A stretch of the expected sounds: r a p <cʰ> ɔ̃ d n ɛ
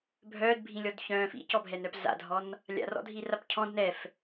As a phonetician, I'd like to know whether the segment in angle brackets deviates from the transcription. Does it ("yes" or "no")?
no